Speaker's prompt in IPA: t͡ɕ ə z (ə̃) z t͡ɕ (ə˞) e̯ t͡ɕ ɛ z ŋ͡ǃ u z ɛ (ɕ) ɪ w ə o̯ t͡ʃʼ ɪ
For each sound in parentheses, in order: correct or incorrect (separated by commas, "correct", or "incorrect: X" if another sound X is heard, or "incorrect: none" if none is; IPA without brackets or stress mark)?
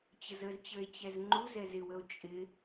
incorrect: ə, correct, incorrect: z